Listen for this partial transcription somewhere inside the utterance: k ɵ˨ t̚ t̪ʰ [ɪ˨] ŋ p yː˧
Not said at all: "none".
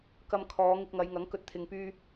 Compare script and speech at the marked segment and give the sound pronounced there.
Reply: ɪ˨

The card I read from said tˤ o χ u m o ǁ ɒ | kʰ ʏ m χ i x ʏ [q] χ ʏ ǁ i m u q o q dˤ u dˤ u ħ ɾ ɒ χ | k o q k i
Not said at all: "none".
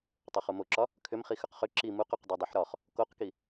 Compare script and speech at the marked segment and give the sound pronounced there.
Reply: q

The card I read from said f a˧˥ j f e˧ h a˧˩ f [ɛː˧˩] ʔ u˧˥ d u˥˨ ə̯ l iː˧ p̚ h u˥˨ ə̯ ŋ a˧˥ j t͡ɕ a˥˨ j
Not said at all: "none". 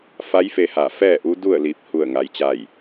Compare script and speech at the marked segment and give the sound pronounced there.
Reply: ɛː˥˨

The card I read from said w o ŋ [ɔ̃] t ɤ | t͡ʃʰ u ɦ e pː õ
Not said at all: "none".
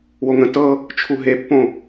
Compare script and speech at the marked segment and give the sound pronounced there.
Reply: ə̃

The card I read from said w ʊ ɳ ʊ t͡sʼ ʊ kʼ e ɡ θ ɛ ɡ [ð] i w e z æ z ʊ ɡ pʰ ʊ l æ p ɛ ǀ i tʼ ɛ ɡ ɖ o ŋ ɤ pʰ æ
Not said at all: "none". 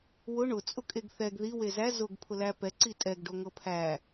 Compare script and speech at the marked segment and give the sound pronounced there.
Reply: ð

